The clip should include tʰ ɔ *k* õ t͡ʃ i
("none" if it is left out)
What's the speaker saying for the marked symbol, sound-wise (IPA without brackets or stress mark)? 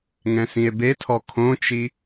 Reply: kʰ